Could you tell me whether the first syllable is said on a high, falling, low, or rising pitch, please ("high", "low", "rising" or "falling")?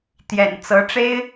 low